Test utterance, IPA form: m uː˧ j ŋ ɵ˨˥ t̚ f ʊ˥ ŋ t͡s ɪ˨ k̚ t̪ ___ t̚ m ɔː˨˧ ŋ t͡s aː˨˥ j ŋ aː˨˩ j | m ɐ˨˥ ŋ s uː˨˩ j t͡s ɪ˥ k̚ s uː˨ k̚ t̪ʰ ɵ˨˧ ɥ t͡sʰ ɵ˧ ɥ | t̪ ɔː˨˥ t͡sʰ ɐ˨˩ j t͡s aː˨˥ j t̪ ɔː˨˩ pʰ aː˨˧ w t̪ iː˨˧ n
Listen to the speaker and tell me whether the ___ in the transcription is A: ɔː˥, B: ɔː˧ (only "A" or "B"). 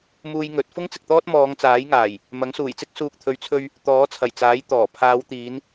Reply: A